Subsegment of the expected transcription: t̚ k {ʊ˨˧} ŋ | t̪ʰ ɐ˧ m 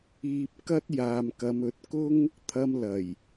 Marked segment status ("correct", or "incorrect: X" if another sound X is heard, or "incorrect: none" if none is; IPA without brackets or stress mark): incorrect: ʊ˥